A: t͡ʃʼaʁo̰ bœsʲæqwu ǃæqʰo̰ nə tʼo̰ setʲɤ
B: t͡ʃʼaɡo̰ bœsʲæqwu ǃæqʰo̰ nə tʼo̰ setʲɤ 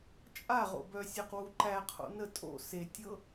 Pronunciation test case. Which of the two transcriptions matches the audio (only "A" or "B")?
A